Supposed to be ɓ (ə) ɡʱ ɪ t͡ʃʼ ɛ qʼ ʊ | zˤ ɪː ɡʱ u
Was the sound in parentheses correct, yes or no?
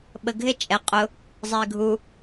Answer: yes